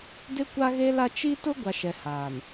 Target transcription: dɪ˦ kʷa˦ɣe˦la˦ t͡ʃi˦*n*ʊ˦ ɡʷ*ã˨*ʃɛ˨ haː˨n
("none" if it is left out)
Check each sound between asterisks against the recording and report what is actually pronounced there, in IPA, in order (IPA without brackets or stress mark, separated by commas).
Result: t, a˨